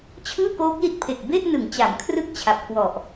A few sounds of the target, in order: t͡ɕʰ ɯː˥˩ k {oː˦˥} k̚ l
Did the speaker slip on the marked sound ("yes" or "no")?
no